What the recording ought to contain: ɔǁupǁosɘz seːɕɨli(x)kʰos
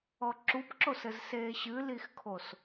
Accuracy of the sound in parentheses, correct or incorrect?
correct